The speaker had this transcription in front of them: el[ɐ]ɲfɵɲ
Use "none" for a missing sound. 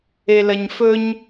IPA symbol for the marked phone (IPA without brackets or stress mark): ɐ